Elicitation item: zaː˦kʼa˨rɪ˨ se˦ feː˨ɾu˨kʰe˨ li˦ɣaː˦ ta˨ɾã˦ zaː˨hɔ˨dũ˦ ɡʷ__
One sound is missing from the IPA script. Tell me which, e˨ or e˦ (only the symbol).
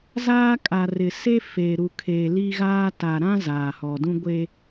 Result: e˦